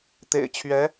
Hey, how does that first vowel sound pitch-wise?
low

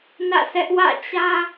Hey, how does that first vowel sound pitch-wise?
falling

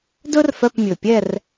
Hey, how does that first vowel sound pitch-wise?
high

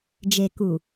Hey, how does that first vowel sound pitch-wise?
low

